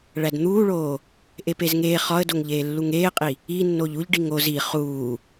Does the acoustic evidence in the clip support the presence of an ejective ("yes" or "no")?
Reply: yes